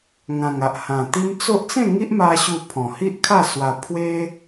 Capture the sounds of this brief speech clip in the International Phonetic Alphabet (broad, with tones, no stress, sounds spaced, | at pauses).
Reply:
ŋ ã˨˩ ŋ a˨ ʔ h ã˨˩ t̪ i˦ m t͡s o˦ ʔ t͡s ẽ˥˧ ŋ i˦ ʔ m a˧ ɕ u˥˧ pʰ ɔ̃˨˩ h i˦ ʔ kʰ a˥˧ s w a˧ pʰ w e˦